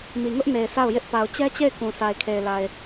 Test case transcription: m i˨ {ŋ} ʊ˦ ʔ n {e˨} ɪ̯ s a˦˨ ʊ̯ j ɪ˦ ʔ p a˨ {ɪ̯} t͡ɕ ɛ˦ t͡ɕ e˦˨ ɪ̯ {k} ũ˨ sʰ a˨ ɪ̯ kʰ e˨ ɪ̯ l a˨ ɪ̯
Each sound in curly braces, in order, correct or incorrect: correct, correct, incorrect, correct

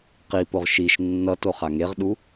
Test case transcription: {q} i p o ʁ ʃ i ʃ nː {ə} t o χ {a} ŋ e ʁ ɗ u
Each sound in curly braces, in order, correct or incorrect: correct, incorrect, correct

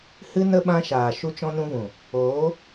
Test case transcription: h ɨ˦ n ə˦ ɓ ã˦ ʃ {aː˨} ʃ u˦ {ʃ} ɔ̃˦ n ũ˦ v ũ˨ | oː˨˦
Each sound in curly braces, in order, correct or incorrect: correct, incorrect

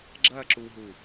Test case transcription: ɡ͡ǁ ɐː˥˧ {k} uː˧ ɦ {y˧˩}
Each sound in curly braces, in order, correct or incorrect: incorrect, incorrect

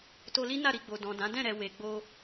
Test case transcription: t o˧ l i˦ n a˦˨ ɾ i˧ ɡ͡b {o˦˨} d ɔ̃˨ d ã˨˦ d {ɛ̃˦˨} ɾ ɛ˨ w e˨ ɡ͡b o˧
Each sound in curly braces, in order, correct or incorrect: incorrect, correct

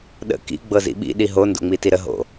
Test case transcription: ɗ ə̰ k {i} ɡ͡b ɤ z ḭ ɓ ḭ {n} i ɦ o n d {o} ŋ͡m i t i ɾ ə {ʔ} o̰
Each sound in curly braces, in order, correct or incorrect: incorrect, incorrect, incorrect, incorrect

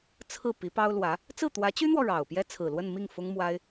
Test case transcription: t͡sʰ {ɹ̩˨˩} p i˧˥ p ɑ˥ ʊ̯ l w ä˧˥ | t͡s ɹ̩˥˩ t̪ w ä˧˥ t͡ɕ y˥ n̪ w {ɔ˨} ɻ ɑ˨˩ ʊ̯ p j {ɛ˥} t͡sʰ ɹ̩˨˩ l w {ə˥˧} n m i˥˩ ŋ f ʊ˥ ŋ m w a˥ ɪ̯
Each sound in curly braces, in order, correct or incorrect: incorrect, correct, correct, correct

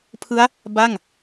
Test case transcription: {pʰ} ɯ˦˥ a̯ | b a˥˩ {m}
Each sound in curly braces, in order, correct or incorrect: correct, incorrect

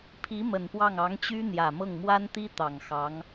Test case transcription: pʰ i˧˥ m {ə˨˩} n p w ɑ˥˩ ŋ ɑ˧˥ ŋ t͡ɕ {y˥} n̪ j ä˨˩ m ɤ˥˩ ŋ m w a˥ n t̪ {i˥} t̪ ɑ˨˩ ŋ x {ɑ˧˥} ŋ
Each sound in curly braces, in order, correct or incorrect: correct, correct, correct, correct

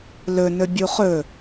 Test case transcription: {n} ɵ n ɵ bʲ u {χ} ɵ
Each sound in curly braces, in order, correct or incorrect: incorrect, correct

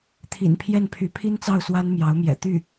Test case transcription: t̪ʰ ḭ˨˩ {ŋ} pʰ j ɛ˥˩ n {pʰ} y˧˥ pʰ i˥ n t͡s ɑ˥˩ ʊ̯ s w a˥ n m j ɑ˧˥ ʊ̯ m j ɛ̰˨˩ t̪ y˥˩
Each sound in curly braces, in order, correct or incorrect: incorrect, correct

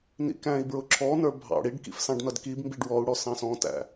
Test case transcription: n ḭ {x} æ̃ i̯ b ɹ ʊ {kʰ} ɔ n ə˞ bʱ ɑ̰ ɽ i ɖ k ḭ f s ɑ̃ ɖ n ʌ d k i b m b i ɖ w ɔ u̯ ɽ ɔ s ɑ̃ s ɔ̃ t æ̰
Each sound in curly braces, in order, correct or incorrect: incorrect, incorrect

